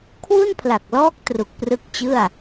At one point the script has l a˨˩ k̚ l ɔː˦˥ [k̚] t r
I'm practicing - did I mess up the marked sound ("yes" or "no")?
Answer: no